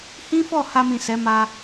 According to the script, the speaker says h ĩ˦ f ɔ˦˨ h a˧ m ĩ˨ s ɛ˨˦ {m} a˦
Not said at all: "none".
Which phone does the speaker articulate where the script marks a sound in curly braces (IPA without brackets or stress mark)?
m